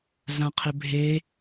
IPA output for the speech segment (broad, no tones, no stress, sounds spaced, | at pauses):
ɮ ã qʰ ɪ bʱ e